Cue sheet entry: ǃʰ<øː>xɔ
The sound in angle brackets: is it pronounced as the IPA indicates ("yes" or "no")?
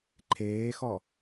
no